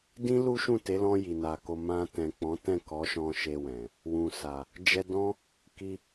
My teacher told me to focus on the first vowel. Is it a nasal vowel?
yes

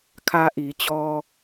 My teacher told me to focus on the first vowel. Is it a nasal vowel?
no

